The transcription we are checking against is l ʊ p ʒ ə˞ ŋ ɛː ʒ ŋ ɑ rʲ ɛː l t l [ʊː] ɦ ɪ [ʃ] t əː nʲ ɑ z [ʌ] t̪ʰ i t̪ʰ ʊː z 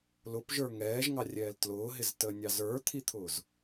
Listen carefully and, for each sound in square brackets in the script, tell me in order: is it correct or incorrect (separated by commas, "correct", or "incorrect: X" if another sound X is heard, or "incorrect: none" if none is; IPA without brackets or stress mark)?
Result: correct, incorrect: z, incorrect: ə˞